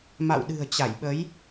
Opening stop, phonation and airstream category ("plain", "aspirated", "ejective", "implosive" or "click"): implosive